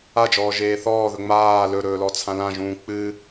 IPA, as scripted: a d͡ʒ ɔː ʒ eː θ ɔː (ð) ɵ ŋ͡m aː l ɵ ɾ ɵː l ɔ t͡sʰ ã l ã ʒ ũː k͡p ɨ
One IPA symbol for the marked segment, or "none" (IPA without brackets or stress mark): ð